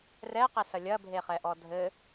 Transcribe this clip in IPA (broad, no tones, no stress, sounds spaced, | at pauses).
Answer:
r ɛ q e s ɐ lʲ ɐ bʱ e χ ɛ ʔ ɔ dʱ ɘ